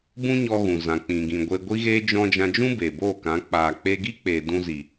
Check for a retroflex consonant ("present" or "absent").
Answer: absent